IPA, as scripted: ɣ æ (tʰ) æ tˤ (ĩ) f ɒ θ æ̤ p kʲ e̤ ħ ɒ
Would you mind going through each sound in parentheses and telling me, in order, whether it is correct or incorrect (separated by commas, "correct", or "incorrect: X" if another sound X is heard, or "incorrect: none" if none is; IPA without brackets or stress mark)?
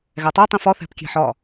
incorrect: tˤ, correct